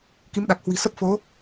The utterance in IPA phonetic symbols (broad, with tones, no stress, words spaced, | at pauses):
ki˨˦mɗa˨˩k̚ hwi̤˨˩ sə˦˥p̚fo˨˦